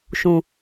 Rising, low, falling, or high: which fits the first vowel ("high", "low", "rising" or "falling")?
low